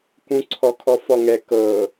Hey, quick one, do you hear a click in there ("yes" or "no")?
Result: yes